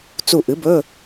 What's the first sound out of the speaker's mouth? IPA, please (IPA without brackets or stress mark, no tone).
t͡s